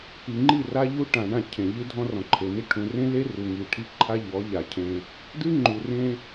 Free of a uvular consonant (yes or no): yes